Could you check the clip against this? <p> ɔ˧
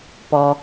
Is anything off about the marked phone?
no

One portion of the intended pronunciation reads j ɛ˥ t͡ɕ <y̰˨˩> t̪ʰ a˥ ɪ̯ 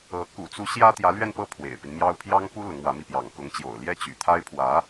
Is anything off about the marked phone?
no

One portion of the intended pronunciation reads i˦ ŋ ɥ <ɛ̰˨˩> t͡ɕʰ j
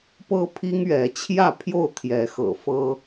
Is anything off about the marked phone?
yes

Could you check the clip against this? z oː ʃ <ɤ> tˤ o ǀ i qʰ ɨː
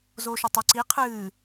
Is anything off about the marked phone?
yes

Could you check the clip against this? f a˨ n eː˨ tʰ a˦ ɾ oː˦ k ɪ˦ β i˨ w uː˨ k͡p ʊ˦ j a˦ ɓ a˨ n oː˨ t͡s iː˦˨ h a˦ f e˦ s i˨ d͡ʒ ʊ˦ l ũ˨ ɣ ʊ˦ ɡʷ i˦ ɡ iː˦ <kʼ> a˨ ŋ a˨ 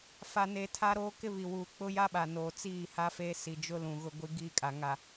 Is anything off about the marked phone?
no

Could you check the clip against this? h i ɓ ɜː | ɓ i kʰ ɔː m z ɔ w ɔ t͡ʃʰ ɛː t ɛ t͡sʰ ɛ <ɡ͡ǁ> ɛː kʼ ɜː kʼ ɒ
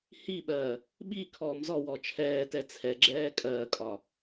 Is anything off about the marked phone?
no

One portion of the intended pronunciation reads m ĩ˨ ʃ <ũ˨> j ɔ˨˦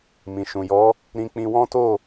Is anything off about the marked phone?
no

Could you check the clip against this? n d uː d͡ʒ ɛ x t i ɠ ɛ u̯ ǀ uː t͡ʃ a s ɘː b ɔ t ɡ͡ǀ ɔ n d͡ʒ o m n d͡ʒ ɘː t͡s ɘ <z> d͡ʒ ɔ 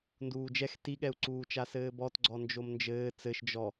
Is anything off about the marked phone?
yes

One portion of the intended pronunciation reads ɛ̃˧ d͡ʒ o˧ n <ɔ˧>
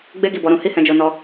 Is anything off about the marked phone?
no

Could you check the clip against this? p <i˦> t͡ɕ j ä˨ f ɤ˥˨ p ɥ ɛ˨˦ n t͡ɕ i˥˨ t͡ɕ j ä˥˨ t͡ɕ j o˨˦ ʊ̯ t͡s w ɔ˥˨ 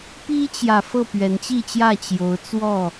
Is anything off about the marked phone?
no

